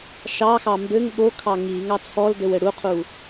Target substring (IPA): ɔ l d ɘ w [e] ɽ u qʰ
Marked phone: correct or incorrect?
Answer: incorrect